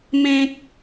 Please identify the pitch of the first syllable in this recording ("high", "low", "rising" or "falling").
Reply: high